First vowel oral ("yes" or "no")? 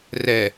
yes